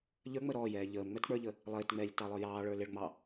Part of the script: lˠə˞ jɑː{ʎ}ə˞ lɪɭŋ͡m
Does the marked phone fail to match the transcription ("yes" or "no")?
yes